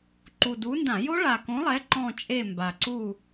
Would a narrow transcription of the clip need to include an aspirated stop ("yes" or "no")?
no